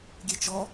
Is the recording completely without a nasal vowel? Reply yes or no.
yes